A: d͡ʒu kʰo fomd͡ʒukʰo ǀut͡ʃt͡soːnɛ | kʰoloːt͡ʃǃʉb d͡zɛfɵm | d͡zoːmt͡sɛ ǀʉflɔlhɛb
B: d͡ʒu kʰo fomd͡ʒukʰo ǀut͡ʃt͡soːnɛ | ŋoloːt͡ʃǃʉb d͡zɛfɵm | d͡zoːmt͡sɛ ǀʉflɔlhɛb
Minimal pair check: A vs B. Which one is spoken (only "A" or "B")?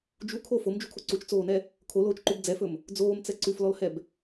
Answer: A